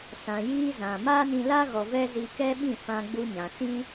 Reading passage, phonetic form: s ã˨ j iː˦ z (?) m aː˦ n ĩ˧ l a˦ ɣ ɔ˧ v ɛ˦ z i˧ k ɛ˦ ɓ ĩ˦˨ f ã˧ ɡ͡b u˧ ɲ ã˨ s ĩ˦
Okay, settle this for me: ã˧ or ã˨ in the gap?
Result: ã˨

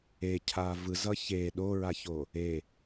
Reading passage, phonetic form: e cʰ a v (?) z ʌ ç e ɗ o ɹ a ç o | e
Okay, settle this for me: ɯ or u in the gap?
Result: ɯ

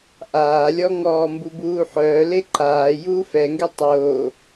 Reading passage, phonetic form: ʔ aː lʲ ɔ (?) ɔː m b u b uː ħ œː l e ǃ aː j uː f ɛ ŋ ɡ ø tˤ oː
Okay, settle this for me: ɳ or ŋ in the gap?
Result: ŋ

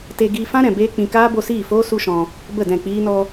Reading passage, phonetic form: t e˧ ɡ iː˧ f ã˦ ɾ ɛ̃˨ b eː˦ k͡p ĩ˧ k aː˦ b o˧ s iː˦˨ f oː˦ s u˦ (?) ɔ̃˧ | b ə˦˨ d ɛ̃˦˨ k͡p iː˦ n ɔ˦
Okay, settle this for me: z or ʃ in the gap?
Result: ʃ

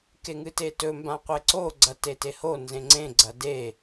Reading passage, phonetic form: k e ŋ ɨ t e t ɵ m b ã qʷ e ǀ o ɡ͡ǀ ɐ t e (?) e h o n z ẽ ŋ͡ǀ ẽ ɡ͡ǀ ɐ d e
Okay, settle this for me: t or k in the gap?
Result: t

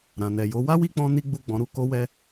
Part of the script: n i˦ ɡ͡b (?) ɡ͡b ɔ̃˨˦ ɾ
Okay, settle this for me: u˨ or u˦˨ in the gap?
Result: u˦˨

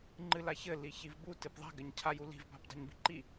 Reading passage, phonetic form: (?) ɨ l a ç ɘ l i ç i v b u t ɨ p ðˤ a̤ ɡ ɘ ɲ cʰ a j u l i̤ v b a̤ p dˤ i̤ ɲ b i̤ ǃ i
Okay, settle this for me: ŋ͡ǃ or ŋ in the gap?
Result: ŋ͡ǃ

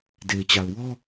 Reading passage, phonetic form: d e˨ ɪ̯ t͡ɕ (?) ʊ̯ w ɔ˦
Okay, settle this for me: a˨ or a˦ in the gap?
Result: a˨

